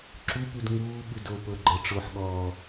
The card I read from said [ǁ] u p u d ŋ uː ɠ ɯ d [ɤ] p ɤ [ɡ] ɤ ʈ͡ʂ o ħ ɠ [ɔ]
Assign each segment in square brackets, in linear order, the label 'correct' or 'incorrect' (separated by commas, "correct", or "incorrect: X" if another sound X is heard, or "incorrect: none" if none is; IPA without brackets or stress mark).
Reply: correct, incorrect: o, incorrect: ɡ͡ǃ, incorrect: ɔː